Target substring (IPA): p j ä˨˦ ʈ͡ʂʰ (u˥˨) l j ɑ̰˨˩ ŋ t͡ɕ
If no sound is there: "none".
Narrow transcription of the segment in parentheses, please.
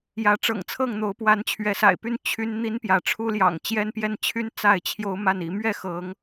u˦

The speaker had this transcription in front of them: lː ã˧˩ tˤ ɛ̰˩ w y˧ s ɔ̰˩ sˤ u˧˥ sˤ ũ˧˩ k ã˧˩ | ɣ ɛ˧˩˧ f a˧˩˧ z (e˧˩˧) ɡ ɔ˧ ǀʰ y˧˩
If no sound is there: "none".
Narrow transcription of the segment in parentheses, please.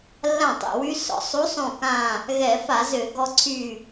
ø˧˩˧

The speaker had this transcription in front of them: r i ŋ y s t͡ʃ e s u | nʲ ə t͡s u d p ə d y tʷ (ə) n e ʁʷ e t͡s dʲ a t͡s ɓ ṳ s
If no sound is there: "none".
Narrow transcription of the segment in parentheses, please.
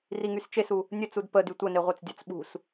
ə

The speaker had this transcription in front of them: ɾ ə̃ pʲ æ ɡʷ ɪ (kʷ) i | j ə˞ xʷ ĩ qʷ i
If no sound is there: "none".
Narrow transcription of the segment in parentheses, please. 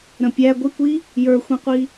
kʷ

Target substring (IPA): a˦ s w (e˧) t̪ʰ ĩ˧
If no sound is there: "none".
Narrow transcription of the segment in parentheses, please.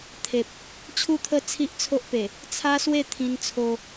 e˥˧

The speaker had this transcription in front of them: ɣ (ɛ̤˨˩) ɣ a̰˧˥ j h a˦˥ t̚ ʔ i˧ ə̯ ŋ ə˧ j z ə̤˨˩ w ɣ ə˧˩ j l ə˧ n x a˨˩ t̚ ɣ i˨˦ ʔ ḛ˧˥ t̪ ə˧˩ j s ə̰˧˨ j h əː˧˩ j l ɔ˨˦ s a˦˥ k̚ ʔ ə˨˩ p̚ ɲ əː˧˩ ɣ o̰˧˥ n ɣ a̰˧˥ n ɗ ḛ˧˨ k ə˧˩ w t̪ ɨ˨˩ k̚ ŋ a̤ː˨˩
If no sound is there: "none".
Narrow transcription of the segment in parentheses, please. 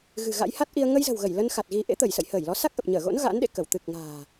ɨ̤˨˩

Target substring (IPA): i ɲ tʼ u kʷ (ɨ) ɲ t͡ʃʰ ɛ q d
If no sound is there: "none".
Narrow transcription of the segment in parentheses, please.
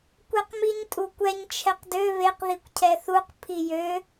ɛ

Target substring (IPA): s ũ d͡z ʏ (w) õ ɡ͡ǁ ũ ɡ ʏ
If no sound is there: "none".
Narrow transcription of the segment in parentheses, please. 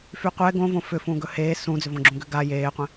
v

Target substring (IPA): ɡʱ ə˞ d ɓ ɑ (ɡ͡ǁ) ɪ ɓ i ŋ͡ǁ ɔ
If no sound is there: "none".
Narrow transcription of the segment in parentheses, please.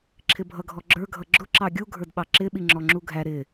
ǁ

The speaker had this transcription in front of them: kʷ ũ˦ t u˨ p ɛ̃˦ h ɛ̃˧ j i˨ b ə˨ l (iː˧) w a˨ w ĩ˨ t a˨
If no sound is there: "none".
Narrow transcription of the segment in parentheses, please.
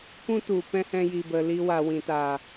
i˧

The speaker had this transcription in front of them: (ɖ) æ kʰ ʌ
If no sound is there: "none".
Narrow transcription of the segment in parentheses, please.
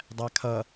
dˤ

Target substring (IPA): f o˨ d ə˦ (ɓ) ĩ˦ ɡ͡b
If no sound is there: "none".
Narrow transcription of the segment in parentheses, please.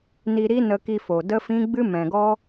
f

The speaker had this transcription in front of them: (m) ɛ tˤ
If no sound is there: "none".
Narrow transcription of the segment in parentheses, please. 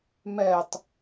m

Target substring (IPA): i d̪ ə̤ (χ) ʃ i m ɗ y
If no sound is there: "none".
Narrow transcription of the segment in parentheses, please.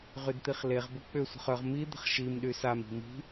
χ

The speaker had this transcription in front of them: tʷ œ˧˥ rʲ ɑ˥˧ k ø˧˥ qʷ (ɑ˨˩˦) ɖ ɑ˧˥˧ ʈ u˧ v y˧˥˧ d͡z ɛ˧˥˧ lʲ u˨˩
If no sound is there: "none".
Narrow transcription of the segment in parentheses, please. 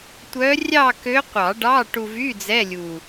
ɑ˨˩˦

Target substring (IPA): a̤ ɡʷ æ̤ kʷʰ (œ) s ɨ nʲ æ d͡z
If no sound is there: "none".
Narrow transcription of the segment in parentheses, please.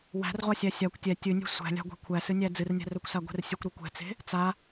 æ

